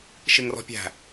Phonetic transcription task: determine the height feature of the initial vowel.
high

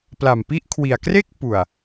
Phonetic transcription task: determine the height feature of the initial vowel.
low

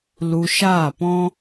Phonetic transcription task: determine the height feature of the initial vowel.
high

